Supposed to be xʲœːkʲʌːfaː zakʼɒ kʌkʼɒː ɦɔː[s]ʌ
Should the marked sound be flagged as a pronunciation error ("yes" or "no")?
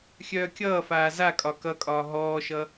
yes